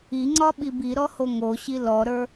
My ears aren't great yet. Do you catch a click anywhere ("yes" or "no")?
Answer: yes